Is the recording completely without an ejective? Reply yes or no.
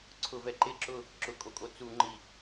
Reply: no